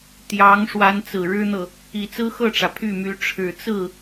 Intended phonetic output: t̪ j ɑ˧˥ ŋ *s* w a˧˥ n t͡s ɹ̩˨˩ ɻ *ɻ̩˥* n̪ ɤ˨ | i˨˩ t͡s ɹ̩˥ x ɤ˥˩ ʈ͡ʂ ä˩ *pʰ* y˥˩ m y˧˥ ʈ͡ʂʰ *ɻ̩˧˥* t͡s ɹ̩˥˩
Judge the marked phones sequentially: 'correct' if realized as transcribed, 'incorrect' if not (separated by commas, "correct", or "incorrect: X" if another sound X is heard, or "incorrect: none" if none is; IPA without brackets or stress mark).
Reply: incorrect: ʂ, correct, correct, incorrect: ɻ̩˨˩